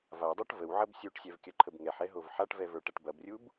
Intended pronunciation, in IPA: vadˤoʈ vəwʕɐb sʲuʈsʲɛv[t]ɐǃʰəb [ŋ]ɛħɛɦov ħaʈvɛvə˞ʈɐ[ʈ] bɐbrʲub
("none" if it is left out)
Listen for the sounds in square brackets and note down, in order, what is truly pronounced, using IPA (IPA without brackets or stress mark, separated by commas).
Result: kʲ, ŋ, ʈ